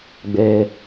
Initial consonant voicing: voiced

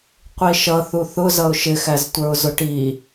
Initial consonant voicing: voiceless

